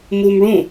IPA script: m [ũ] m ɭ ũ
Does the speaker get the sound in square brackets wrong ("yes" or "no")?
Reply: yes